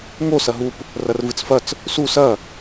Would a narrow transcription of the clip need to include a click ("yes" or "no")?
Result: no